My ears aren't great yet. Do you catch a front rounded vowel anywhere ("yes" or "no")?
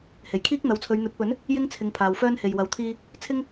yes